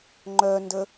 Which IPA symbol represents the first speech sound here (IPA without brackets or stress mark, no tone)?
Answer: ŋ͡ǃ